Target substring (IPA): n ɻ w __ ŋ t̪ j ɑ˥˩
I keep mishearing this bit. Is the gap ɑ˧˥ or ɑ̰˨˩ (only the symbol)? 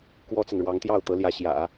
ɑ˧˥